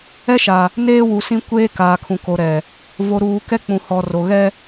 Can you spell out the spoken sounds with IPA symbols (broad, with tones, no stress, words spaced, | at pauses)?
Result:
ɛ˦ʃa˨ | neː˦ wu˨sĩ˦ kʷeː˦ kaː˨kʰũ˨ko˨ɾɛ˨ | vo˨ɾuː˨ kɛ˦ k͡pũ˨hɔ˨ ro˨ɣɛ˦